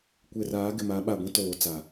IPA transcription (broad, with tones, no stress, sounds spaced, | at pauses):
kʷ e˨ r aː˨˦ ɡ ɪ˨ m a˨˦ ɓ a˨ ɡʷ ĩ˦ t oː˨ t͡s a˨